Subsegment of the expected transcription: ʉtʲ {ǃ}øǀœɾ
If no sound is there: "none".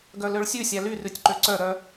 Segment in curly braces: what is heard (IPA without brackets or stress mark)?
ǃ